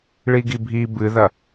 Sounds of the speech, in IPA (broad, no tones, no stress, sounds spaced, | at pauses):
ɭ i ɡ i bʱ i b ɨ ð ɐ